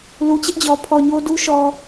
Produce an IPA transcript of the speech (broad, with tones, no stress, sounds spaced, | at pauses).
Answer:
l u˨ t͡ɕ ɪ˦ ʔ d͡ʑ ɔ˨ pʰ ɔ˨ ɲ o˦ d u˦ ʃ ɔ˨